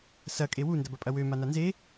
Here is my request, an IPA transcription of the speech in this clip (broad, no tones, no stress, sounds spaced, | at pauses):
s ɐ kʼ e w u n d ɐ b ɐ pʼ ɐ w ø m a n a n z e